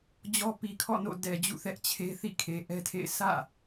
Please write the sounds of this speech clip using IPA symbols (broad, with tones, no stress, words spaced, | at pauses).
d͡ʑɔ˦pi˨kʰɔ̰˦˨no̰˦˨ dɛ˨d͡ʑṵ˦˨θɛ˦ʔt͡ɕʰe˦ θḭ˦˨kʰe˨ʔɛ˦tʰḛ˦˨ɪ̯ sʰä̰˦˨